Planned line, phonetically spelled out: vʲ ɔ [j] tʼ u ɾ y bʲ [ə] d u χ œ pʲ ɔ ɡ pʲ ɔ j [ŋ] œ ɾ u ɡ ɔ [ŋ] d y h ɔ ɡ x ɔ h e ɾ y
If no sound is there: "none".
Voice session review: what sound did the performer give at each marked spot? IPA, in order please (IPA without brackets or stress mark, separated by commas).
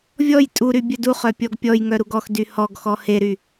j, œ, ŋ, x